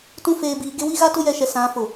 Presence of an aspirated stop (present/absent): absent